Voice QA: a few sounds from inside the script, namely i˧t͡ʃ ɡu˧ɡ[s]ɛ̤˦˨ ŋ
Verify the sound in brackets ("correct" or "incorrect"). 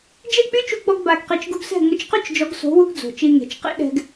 correct